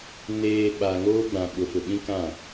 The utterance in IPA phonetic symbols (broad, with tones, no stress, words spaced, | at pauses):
neː˨ ɓa˨ŋoː˦ɡ͡bã˨ ɓʊ˨fʊ˨ɓĩ˦ kã˦˨